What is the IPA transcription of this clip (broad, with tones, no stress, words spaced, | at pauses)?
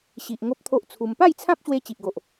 ɕi˨ʔ ŋo˦p̚t̪ʰo˦ʔt͡sʰu˧m pa˥˧jt͡sʰã˦p̚ɕwe˧ t͡ɕi˨ʔɡo˨ʔ